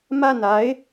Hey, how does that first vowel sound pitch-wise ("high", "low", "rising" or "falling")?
falling